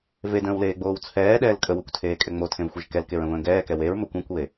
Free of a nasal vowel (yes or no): no